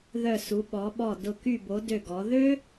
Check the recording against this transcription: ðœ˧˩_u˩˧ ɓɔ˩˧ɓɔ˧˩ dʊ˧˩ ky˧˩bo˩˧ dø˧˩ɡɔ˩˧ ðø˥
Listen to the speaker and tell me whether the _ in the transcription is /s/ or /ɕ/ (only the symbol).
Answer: s